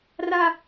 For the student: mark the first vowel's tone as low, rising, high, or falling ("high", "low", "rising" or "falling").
high